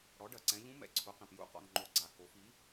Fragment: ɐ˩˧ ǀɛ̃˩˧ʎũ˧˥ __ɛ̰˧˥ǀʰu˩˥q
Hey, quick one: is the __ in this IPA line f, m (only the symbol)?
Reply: m